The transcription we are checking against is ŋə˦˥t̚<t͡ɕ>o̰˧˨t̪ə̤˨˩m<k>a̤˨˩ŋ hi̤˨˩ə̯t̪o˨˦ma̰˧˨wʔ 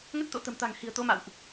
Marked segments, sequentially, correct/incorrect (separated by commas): incorrect, incorrect